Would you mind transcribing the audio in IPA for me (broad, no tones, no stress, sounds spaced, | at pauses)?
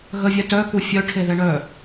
ɣ ə vʲ ɛ t œ k u fʲ œ ʈʰ e ð ɛ ɳ œ